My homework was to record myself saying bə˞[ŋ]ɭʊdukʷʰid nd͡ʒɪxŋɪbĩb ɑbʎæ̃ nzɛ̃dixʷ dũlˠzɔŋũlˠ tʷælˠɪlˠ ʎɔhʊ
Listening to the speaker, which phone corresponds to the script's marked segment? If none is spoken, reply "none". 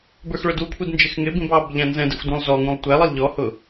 x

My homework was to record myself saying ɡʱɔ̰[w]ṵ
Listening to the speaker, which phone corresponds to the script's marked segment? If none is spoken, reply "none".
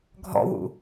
w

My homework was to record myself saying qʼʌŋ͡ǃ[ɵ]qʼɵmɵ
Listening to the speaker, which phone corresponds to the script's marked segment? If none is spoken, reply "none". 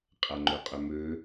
ɵ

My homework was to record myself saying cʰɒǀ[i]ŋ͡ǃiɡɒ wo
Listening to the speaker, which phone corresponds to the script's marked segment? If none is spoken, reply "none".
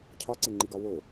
e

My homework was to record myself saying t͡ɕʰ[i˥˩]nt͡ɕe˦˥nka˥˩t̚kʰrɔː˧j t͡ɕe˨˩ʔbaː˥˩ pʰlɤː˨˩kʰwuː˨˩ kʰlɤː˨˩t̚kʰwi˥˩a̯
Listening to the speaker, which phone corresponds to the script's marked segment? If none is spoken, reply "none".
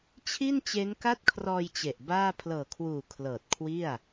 i˥˩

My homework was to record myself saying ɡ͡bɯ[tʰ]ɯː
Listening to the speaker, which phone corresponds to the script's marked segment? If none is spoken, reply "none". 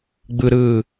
ɾ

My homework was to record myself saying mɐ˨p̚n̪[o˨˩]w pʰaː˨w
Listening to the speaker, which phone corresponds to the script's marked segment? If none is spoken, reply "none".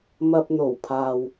o˨˩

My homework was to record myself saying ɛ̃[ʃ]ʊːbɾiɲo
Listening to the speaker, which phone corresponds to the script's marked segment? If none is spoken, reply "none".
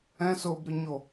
s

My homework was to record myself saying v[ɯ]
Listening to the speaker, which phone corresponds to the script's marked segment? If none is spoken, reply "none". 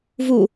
u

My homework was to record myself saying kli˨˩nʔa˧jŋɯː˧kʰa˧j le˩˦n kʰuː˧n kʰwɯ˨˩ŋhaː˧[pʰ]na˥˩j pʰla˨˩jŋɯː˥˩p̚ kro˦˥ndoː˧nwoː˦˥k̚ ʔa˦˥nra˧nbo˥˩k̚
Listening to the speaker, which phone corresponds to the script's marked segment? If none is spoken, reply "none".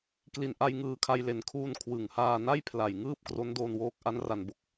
none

